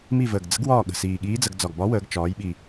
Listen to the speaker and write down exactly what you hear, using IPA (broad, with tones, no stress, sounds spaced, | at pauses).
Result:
m i˦˨ v əː˨˩ ɡ d͡z ə̤˧˥ ɡ w ɒː˦˨ ɠ ə̤˨˩ s iː˨˩ ɠ iː˧˥ d͡z ə˩˧ ɡ d͡z ɒ˨˩ ɡ b ɒ˧˥ w əː˩˧ ɡ t͡ʃ ɒː˩˧ j ɓ i˨˩